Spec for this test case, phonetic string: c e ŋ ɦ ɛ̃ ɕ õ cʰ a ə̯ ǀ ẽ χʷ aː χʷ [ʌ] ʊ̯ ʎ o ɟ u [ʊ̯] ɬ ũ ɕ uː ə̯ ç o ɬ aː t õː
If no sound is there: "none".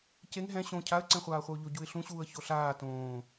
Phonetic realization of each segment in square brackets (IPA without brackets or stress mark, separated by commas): ʌ, ɪ̯